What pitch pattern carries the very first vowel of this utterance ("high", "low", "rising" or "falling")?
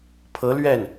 rising